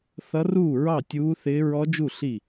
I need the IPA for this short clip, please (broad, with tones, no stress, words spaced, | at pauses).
θʌ˦˥ruː˥˨ɹɑ˥˨ tʲuː˦˥θɪː˦˥ ɹɔ˦˥d͡ʒu˥˨ ɬi˥˨